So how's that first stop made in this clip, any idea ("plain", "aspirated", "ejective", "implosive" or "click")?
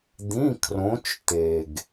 plain